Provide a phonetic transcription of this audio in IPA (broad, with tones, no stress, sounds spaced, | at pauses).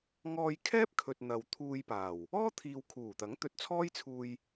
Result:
ŋ ɔː˧ j kʰ ɛː˥ p̚ kʰ ɵ˨ t̚ n̪ ɐ˨ w t̪ʰ uː˧ j p aː˨˩ w | ɔː˥ t̪ʰ iː˨ w kʰ uː˨˩ t̪ ɐ˨˥ ŋ t̪ ɵ˧ t̚ t͡sʰ ɔː˥ j t͡sʰ uː˧ j